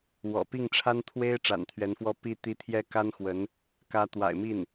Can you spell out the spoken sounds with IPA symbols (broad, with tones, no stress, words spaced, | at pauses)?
wɔ̰˨˩pi˥˩ŋʈ͡ʂʰa˥n t̪ʰwe˥ɪ̯ ʈ͡ʂa̰˨˩nt̪ʰɥɛ˧˥nfwɔ˥ pi˥ t̪i˥ t̪ʰjɛ˥ka˥nxwə˧˥n | kä˧˥t̪wa̰˨˩ɪ̯mi˥˩n